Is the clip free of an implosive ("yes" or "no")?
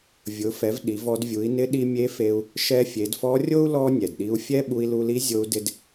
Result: no